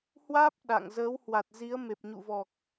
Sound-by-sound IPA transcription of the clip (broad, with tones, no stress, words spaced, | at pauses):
hwaː˦˥p̚ ɗa̰˧˨ŋ zəː˨˦whwa˨˩t̚zi˨˦ə̯ me˨˩p̚ɲṵ˧˨vɔ˨˩k̚